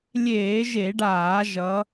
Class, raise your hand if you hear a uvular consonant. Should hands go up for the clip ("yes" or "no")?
no